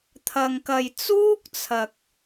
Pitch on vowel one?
low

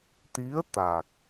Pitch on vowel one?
rising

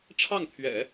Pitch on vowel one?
falling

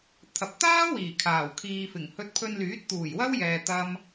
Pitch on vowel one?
low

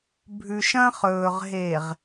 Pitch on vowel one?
low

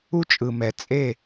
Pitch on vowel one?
high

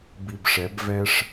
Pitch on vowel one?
low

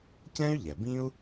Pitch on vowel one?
high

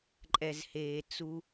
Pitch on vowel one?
low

